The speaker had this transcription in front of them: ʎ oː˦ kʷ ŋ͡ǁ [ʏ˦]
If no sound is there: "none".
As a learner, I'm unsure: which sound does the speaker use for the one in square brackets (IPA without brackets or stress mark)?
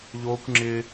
ɪ˦